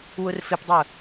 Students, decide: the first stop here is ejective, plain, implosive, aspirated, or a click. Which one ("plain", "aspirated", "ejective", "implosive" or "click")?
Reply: plain